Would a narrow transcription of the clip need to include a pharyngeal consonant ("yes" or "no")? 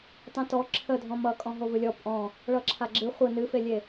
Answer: no